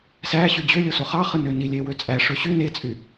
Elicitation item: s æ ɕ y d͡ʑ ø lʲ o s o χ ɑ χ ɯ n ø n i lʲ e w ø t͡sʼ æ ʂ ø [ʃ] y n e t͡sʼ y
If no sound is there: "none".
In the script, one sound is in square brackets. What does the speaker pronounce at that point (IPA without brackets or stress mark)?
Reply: ɕ